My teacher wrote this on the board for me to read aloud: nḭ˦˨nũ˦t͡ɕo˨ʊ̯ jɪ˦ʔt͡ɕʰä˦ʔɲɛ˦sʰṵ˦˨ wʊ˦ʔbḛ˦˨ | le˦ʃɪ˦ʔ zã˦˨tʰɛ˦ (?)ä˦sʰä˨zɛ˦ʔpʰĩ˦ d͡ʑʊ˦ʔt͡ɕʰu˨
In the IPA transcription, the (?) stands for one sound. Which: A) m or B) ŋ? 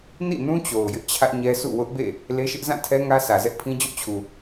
B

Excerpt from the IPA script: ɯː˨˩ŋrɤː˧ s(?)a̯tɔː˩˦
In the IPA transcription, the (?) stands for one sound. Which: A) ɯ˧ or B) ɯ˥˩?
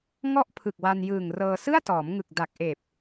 B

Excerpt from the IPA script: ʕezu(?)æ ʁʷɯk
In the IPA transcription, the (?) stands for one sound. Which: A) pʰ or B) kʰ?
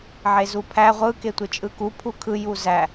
A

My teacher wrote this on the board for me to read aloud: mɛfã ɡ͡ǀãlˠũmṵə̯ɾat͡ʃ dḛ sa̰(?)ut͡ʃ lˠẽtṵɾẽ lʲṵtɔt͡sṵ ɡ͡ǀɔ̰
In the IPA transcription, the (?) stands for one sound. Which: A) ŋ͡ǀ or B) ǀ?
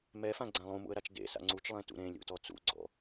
A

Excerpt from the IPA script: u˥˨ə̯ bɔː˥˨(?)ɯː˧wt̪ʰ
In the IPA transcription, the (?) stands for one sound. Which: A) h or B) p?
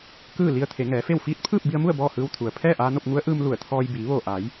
A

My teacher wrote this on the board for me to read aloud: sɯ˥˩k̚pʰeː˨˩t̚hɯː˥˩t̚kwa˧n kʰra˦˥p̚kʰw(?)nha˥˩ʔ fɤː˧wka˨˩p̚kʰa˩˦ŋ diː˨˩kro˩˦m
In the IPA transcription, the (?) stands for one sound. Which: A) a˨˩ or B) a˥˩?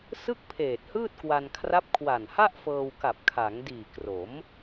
A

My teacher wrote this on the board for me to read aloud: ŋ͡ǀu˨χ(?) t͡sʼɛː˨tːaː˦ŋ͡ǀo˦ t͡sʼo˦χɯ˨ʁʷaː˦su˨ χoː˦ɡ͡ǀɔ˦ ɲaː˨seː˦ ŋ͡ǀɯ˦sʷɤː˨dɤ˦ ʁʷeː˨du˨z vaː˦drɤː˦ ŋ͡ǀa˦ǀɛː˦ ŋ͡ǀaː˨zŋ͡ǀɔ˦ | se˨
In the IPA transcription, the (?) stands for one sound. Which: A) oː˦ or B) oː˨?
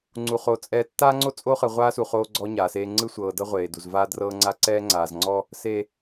B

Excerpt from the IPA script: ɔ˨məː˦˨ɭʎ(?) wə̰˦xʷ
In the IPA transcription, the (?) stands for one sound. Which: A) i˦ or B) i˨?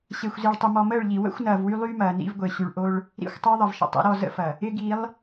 B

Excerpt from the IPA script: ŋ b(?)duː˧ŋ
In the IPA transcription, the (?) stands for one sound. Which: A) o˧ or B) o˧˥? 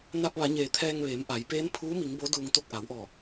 B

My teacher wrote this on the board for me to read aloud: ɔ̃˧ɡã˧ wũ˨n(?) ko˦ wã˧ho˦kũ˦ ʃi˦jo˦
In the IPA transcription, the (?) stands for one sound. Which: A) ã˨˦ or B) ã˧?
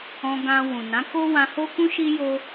A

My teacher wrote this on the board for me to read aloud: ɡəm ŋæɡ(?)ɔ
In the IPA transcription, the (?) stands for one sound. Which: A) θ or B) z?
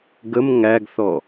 A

